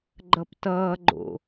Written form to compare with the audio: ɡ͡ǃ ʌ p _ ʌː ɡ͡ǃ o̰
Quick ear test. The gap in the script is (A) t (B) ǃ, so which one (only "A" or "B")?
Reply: A